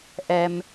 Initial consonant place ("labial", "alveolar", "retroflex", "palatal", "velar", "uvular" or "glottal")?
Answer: glottal